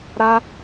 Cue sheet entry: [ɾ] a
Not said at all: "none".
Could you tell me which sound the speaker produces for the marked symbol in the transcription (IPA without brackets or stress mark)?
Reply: ɾ